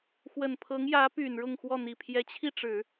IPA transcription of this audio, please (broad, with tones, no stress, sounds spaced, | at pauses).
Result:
x w ə˨˩ n pʰ ɤ˧˥ ŋ j ä˧˥ p y˨˩ n ɻ ʊ˥˧ ŋ x w ɔ˥˩ n̪ i˨˩ pʰ j ɛ˧˥ t͡ɕʰ i˥˩ ʈ͡ʂ ɻ̩˨˩˦